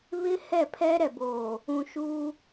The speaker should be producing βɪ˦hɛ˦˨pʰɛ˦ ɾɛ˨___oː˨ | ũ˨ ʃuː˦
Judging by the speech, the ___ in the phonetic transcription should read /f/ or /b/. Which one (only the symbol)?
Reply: b